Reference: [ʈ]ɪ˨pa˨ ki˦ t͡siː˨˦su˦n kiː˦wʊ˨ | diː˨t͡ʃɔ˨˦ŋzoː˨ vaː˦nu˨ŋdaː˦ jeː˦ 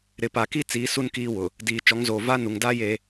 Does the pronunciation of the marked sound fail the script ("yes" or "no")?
yes